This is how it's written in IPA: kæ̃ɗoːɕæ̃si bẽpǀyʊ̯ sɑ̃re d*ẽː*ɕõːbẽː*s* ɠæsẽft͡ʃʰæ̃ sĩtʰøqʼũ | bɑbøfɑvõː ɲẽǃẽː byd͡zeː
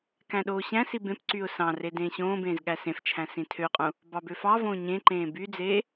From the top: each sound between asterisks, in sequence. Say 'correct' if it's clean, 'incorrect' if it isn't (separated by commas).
correct, incorrect